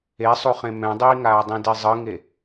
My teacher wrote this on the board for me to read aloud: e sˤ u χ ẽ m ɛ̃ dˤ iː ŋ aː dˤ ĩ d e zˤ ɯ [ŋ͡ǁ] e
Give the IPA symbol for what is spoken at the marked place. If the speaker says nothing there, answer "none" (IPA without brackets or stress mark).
ŋ